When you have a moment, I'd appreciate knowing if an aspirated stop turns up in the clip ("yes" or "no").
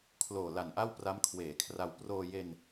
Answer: yes